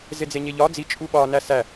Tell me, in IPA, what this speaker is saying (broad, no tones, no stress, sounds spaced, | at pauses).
z e d͡z e ɲ e ʎ ɒ d͡z i t͡ʃʼ u ɓ ɒ n æ s æ